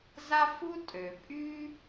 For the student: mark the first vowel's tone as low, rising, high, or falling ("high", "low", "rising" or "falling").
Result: high